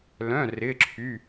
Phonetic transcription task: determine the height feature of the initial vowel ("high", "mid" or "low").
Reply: mid